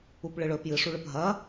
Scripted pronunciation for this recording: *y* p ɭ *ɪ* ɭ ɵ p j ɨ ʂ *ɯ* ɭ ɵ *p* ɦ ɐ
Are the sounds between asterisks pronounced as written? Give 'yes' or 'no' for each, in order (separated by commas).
no, no, no, yes